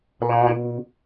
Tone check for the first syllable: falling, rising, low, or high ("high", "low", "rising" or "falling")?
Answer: high